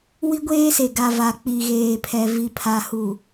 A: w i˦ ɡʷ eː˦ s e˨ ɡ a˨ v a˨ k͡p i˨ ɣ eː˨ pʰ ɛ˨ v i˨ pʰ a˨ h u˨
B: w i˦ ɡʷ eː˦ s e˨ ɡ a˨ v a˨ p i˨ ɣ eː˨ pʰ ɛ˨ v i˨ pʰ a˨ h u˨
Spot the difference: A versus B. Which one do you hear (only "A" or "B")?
A